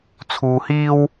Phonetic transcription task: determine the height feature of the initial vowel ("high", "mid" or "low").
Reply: high